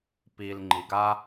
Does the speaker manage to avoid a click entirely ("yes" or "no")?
no